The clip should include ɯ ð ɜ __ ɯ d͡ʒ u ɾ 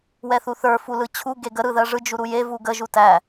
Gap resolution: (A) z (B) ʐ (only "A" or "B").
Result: B